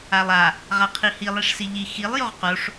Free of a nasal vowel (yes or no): yes